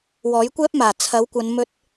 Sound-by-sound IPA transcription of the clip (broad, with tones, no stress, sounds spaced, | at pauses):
w ɔː˨˥ j kʷ ɛː˥ p̚ m aː˨˩ t͡sʰ ɐ˨˥ w kʷ ɐ˨˧ n m ɵ˧ t̚